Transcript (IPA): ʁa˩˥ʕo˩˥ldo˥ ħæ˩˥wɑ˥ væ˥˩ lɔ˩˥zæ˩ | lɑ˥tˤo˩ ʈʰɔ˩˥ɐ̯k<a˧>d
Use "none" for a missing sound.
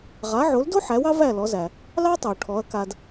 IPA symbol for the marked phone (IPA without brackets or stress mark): a˧